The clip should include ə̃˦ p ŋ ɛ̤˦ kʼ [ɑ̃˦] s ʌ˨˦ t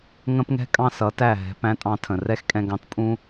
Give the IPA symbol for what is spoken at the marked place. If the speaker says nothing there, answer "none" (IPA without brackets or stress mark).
ɑ̃˦